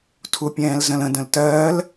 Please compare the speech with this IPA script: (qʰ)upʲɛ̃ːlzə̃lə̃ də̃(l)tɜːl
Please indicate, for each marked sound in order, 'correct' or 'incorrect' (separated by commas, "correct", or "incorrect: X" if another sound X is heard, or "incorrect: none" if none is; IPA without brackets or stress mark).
incorrect: tʰ, correct